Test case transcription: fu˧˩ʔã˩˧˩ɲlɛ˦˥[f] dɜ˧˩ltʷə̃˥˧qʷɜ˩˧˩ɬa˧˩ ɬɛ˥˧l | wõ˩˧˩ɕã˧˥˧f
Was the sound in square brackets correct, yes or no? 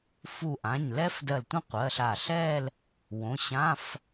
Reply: yes